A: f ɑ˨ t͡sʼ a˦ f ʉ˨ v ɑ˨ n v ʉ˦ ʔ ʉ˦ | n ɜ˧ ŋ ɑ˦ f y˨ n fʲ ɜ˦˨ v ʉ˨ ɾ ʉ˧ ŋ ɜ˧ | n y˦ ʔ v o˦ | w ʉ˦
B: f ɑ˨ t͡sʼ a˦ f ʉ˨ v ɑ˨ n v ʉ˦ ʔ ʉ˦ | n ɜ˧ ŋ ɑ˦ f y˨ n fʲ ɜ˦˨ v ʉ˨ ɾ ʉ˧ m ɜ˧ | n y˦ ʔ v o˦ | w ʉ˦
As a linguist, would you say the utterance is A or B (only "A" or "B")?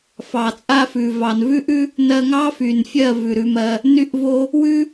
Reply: B